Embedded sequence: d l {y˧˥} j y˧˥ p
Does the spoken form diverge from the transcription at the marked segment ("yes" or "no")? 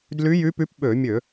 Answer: no